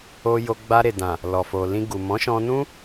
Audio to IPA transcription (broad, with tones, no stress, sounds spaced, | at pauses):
o˧ j o˧ ɡ͡b a˧ ɾ e˨ d ã˨ | l ɔ˨ f o˨ l ĩ˧ ɡ u˨ m ɔ̃˨˦ ʃ ɔ̃˧ n ũ˦